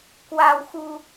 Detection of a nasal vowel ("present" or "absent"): absent